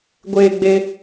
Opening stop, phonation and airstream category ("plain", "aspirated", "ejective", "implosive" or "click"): plain